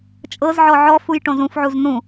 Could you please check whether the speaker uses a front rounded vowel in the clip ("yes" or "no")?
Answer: no